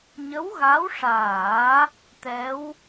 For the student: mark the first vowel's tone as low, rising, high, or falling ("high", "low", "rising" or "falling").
rising